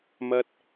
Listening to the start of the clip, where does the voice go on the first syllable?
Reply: high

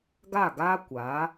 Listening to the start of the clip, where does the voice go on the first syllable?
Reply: falling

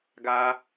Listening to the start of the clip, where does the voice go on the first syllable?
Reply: high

